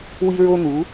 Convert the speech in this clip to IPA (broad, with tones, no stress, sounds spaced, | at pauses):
w i˥ ɹ o˥ n̪ u˩˥